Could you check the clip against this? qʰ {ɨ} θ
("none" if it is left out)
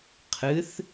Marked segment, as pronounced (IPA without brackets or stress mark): ɨ